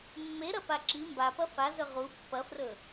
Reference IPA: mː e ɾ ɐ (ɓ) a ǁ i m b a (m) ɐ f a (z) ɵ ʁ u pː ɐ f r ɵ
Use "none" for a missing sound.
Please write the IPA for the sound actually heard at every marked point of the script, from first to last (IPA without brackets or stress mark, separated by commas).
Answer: p, p, z